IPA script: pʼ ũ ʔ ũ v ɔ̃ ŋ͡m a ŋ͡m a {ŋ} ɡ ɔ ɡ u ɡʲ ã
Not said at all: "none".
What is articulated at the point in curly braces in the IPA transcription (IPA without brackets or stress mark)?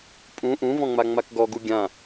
k